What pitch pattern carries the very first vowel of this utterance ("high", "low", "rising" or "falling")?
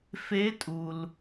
rising